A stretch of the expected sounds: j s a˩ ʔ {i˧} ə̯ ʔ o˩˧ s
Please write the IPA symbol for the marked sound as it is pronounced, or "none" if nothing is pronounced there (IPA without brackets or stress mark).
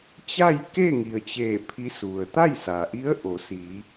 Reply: i˧˥